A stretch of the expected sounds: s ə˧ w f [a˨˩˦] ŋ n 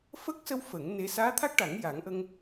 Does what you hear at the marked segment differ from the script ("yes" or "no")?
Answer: yes